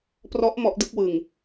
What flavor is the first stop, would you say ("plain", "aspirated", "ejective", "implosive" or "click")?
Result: plain